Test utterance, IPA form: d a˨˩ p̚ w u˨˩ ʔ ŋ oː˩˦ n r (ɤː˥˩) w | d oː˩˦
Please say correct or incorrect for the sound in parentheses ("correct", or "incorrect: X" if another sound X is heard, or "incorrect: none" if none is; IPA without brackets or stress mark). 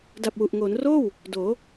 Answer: incorrect: oː˥˩